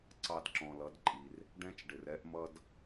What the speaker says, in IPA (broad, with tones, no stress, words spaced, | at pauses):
ǀɑ˧dǁɔ̃˨lʌ˨˦dǃʼi˨r | ɖɛ̃˦t͡ʃɖɪ˨r ɛ˦ʔmʌ˦d